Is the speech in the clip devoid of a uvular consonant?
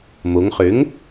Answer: no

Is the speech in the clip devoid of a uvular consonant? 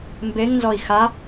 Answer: yes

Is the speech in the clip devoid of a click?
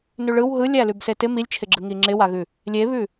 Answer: no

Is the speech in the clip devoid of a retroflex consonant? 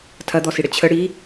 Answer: no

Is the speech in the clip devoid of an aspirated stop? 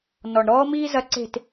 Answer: yes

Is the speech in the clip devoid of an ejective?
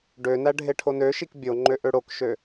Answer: yes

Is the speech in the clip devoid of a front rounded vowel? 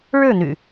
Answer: no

